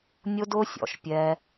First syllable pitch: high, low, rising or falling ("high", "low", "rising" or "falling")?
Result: high